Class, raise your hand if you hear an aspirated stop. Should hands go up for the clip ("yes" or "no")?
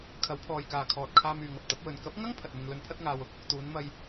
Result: yes